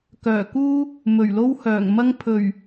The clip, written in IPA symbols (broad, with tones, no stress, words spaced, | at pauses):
kœː˨˩kuː˥ | mɵ˨˩ɥlo˥whœː˨˩ŋmɐ˥ŋ pʰɵ˨˩ɥ